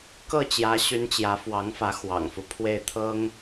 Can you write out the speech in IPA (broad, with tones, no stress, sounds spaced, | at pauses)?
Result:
k ɤ˥˩ t͡ɕ j ä˧˥ ɕ y˧˥ n t͡ɕ j ä˧˥ f w ɑ˧˥ ŋ f ä˧˥ x w ɑ̰˨˩ ŋ f u˦ pʰ w e˥˩ ɪ̯ t̪ʰ ɤ˥ ŋ